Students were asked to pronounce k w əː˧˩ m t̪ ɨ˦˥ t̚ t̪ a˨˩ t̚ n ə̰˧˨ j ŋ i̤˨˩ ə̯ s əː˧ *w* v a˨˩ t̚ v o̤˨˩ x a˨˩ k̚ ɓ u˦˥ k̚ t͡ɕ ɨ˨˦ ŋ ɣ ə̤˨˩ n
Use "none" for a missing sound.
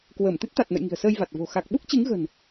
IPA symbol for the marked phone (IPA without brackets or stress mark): j